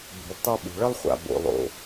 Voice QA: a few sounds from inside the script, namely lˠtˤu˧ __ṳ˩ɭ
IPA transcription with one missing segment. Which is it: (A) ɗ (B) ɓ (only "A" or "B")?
B